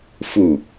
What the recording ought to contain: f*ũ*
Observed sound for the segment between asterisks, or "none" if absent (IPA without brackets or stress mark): u